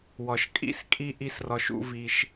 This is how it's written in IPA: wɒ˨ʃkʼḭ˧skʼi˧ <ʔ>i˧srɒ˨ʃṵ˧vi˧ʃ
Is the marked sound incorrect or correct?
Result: correct